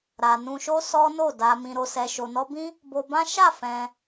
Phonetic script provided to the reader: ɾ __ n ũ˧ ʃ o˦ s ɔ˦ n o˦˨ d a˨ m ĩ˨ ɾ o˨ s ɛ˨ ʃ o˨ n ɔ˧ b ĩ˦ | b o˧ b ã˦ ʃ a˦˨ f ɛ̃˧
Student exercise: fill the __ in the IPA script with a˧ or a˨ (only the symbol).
a˨